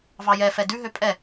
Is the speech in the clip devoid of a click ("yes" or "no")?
yes